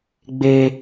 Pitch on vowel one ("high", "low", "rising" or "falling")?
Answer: high